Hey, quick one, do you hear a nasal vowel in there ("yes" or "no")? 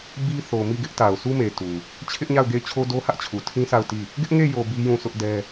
yes